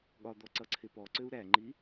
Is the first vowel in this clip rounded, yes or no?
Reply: yes